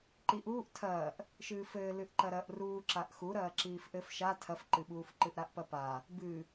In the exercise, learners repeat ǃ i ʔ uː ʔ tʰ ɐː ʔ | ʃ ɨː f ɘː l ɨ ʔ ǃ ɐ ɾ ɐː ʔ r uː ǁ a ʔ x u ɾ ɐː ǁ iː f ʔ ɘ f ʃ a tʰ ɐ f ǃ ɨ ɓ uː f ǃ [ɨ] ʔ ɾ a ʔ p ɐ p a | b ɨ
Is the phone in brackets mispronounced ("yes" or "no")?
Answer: no